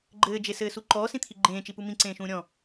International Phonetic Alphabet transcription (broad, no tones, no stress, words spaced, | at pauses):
ɡ͡ǃɘːd͡ʒesɘːsu ǃɔːsĩt̪ʰi ɡ͡ǃẽːt͡ʃipu mĩǀẽːʃũː ɾʲɔ̃